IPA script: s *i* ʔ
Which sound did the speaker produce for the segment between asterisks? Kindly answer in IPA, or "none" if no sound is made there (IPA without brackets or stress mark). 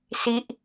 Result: i